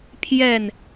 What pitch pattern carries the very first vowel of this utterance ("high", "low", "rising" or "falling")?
falling